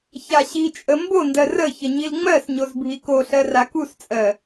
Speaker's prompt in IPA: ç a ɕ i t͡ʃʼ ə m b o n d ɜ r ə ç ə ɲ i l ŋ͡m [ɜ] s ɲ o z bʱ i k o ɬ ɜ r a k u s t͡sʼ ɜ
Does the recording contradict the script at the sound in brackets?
no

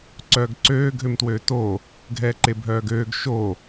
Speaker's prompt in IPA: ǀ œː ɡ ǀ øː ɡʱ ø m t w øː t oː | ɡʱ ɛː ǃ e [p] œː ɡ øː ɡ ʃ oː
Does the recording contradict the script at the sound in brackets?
yes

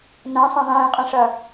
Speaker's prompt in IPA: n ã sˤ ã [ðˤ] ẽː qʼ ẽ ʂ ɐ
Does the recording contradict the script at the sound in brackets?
no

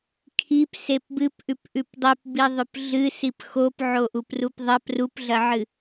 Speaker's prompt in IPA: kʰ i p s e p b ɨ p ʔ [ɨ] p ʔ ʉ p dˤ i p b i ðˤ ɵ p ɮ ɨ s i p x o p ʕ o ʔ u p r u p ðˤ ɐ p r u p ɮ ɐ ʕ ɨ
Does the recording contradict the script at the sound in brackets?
yes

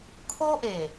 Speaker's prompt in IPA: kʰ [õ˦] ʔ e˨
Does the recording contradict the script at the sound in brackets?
yes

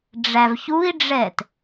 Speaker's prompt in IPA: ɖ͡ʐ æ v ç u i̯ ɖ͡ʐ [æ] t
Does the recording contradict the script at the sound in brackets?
yes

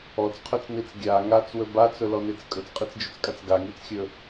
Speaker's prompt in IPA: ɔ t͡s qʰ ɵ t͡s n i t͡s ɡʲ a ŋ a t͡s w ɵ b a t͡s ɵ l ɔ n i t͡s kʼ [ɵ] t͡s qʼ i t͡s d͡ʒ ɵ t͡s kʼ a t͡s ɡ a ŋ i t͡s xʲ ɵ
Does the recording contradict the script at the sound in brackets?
no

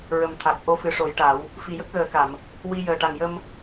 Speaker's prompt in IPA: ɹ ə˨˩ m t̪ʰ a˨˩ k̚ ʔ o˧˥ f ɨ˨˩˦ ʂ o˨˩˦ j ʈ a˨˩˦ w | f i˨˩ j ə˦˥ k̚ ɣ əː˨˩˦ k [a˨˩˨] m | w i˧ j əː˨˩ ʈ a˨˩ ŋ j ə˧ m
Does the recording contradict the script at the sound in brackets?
no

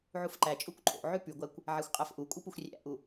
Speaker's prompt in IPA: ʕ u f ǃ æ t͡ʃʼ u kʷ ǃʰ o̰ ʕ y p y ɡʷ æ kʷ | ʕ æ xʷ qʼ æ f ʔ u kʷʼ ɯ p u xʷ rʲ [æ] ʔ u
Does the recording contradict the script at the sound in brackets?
yes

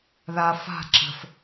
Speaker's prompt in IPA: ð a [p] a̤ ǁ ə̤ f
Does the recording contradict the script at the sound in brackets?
yes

